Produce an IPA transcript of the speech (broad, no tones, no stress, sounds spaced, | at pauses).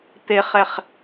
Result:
t̪ e χ ɛ χ